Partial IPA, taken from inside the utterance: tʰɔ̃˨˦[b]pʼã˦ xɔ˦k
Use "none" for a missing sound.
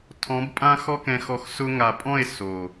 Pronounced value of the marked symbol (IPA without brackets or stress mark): b